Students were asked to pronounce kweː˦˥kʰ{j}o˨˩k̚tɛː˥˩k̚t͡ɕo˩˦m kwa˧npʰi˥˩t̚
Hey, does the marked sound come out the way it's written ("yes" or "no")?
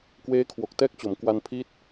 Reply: no